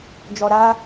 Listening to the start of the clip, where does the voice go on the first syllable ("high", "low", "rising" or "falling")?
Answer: low